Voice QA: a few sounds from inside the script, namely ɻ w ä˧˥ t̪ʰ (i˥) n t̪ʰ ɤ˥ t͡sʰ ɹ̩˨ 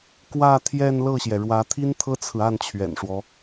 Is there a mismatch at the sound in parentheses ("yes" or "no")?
no